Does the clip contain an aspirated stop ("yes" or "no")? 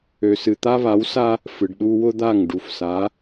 no